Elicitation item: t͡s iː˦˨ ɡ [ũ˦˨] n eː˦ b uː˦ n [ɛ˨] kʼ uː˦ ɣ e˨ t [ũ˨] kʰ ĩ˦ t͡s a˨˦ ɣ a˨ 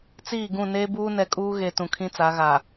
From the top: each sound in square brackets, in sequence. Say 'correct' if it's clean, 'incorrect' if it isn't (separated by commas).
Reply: correct, correct, correct